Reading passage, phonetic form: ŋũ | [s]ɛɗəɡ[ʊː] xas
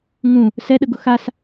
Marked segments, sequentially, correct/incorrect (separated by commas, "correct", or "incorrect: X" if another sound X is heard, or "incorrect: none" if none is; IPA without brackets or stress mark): correct, incorrect: ʊ